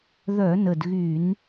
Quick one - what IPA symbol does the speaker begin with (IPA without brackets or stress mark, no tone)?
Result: ð